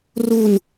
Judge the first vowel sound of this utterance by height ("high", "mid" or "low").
high